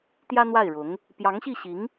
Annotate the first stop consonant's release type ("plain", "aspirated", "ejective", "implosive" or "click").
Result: plain